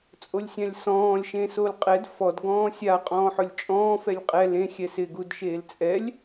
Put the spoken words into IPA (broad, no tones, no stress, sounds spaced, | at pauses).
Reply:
t͡sʼ o lʲ sʲ ã lʲ s ɔ̃ː lʲ ʃ ẽ s o l qʼ ɛ d f ɔ d ɡ ɔ̃ː sʲ a qʼ ɔ̃ː ħ ʊ lʲ t͡ʃʼ ɔ̃ː f ɛ lʲ qʼ ɛ l ẽ xʲ ɛ s ɪ ɡ u d ʃ eː l t͡sʼ ɛ lʲ